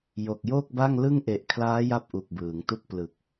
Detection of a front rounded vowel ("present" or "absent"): absent